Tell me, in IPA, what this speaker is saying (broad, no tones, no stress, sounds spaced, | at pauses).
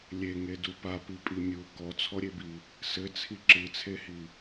lʲ e ŋ e d u p a p i pʼ i mʲ u k ɔ t͡sʰ ɔ ɾʲ e b i | s ɘ t͡sʰ i ǁ ɨ t͡sʰ e h i